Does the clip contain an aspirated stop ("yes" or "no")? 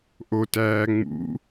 no